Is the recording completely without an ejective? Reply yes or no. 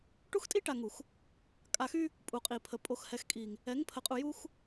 no